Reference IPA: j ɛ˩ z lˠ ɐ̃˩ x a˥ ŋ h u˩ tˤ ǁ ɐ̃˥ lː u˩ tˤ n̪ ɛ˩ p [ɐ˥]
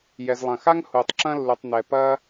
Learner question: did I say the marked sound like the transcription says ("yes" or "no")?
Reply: yes